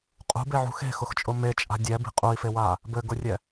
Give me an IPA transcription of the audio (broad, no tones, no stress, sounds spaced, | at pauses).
qʼ ṳ b e ʕ ṳ x e̤ x ʊ x t͡ʃʼ ʊ m e t͡ʃʼ a̤ dʲ ɛ b i̤ qʼ u i̯ f e w aː | b ɘ ɡ ʊ rʲ ɛ